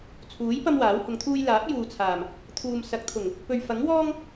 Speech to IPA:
t͡sʰ uː˨˥ j p ɐ˥ m w aː˨˥ w h ʊ˨˧ ŋ t̪ʰ uː˥ j l aː˨˥ p̚ j uː˨ t͡sʰ aː˨˩ m | t̪ʰ uː˨ m s ɐ˨˥ k̚ t̪ʰ ʊ˨˩ ŋ | p ɵ˨ ɥ f ɐ˨˥ ŋ w ɔː˥ ŋ

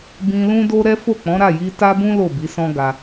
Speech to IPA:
b ĩ˧ l ũ˦ d o˦ ɾ ɛ˦ f o˦˨ k͡p ɔ̃˨˦ ɾ a˦˨ j i˧ t a˦ b ũ˦ l o˦˨ b i˨˦ s ɔ̃˦ ɡ a˧

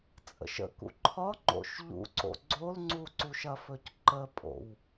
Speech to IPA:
t͡sʼ ə̰ ʃ ə̰ k ṵ ǃʰ ɒ ŋ͡ǃ o̰ ʃ ʎ ṵ ǀ o̰ ɡ͡ǀ o l ŋ͡ǀ u ǀ u ʃ ɐ f ɵ c ǃ ə pʼ o̰ w

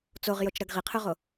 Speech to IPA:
t͡s o ʁ j o t͡ʃ ɾ ɐ ɡ ʁ i qʰ ʉ ʁ o

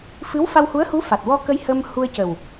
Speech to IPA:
f ɨ˧˥ w f a˧ w h u˧˥ ə̯ h u˧˥ f a˨˩ t̚ w ɔ˧ k ə˧ j h ə˧ m h u˧ ə̯ c ə˨˩ w

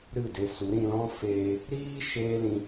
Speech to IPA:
ɾ ɨ˦˨ d e˧ s u˨˦ ɾ ĩ˧ l ɔ̃˦ f eː˧ | ɾ iː˦ ʃ eː˦ l ĩ˧

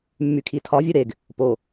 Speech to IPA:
mː y kʰ i tʰ ɒ vʲ u ɾ e ɡ | p o

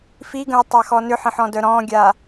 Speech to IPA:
f i ɡ ə̃ ɪ̯ tˤ a x ɔ n ʏ ħ ə̃ ħ ɔ̃ d œ ɾ ɔ̃ ɡʲ a

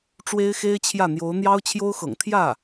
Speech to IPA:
ʈ͡ʂ w e˥ ɪ̯ x e˥ ɪ̯ t͡ɕʰ j ä˥˩ n̪ j o˧˥ ʊ̯ n̪ j ɑ˥ ʊ̯ t͡ɕʰ j o˥ ʊ̯ x ɤ̰˨˩ ŋ t̪ʰ j ä˥˩

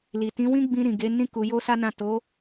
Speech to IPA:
l i˨ t ĩ˨˦ w ĩ˦ ɡ͡b ĩ˧ ɾ ĩ˨ ɡ e˨˦ n ĩ˦ k u˧ j o˦ s a˦ n ã˦˨ t o˨˦

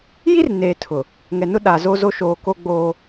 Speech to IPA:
j i˦ r n eː˨ tʰ ʊ˨ | ŋ ɛ˨ n ʊ˦ ɗ a˨ z o˦ z o˦ ʃ oː˨ k o˦ ɡ͡b oː˦

